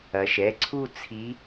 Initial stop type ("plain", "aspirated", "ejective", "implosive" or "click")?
click